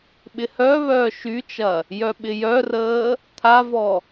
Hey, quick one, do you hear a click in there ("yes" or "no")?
no